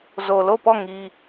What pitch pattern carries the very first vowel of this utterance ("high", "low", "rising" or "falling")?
low